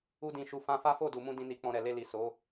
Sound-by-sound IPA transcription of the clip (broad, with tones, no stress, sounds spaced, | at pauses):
u˦ d ĩ˧ ʃ u˧ f ã˧ f a˦ f o˦˨ d u˨ m ũ˧ d ĩ˨ n i˨ k͡p ɔ̃˧ ɾ ɛ˨ l e˧ l i˨ s o˨˦